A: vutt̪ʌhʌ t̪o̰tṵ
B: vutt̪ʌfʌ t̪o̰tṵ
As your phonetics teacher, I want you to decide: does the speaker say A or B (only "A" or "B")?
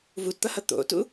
A